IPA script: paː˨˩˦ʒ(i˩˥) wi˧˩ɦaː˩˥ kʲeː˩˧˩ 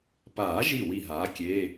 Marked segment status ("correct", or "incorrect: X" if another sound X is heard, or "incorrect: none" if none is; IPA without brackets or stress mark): incorrect: i˧˩